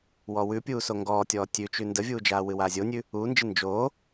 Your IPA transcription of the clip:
wɔwʉpʲuː soŋɡɔːtʲɔː tʲʉt͡ʃʉ ndəvʲuːd͡ʒaː wɨwaːzʲonʲʉ | uːnd͡ʒɨ nd͡ʒoː

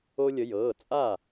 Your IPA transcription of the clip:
o˧lʲə˩˧ jɤː˩˧˩ t͡sʼa˥˩

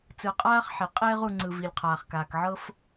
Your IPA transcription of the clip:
t͡sɯ˨qʼaː˥χ ħe˩ qʼeː˥ʁu˨ŋ͡ǀɯ˩ vi˩lʲqʰaː˩χkaː˩kʕɤ˥f

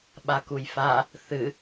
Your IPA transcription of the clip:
ɓakujfa | θɨ

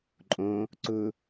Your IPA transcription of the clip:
ǃʼõ | ǀʊ

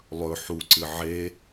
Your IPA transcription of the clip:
lˠɵ ħuǀɨ ʕe

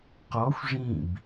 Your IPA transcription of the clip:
qɔxʷ ʐĩb

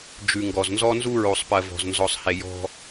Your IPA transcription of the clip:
d͡ʒʉ˨ ŋɡɔ˨znzɔ˦nzu˦ ɹo˨sˤpɜ˨ vɔ̤˨znzɔ˨sˤhe˨ jɔ̤˦

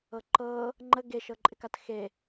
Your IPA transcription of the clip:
ɤǃɤ | ŋ͡ǃə ɡe ʃɤǃʼɪkatxe

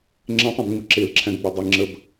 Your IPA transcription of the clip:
ŋ͡ǁɛ̃tˤɛ̃bŋ͡mɪ ǁelǁʰæ̃ɡɡ͡bɐ dˤe ŋ͡ǁəb

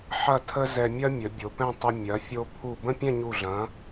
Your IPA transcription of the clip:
ħɐ˥˧tʰə˥zɛ˧ mʲɐ˥mʲə˩˧ bʲo˩˧pɛ̃˥˧ tˤə˧ mʲɐ˩˧fʲo˧ pʰu˧˩ bə̃˥˧pʲɛ̃˥˧ɲu˧˩ɮɐ̃˩˧

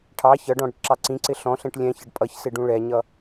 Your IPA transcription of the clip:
ʈʰɑ çʌɖɔ̃ ɽɪʈǁɑǀĩǀɪ ɬɔ̃ɬɛ̃ʈ lʲɛ̃çʌɖ pʼʌçsɪ ɖũɭɛɲʌ

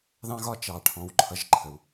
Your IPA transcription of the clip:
ðɑ̃˥ ɣɒ˥t͡ʃɑ˩ʈʰɔ̃˨w ǃʰʌ˨ʒǃʰə˩w

